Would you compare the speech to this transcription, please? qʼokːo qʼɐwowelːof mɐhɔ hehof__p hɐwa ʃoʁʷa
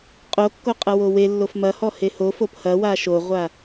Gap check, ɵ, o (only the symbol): o